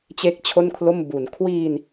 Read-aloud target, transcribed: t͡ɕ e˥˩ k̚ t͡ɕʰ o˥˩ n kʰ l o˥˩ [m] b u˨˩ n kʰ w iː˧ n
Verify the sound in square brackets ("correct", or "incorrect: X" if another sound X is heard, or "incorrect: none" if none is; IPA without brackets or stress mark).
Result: correct